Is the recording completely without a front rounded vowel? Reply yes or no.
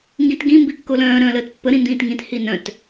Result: no